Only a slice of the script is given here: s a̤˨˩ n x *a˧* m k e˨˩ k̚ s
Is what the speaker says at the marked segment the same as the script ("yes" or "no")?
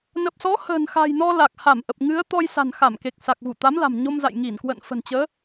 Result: no